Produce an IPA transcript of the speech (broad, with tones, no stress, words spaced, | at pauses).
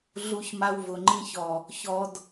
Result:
ɮu˧çma˧w vʊ˨ŋ͡ǃĩ˧çɔ˨ | çɔ˧d